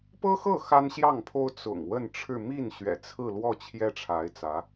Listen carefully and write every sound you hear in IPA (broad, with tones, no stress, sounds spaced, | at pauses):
p ɤ˥ x ɤ˥˩ x a˥ n ɕ j ɑ˥˩ ŋ pʰ o˥ ʊ̯ t͡s ʊ̰˨˩ ŋ w ə˥˧ n ʈ͡ʂʰ ɻ̩˥˧ m i˥˩ n ɕ ɥ ɛ̰˨˩ t͡sʰ ɹ̩˥˧ l w ɔ˥˩ t͡ɕʰ j ɛ˥ ʈ͡ʂʰ a˧˥ ɪ̯ t͡s ä˧˥